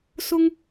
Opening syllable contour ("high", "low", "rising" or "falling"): high